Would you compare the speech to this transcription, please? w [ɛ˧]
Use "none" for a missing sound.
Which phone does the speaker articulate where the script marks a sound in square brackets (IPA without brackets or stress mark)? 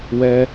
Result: ɛ˧